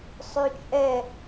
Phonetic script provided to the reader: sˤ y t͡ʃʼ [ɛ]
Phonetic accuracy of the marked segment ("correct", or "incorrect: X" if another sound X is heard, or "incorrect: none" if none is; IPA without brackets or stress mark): correct